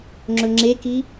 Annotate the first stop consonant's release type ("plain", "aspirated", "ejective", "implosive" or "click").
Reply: click